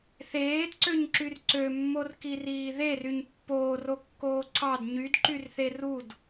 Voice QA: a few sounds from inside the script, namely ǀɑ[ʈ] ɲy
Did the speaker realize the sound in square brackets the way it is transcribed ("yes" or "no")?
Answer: no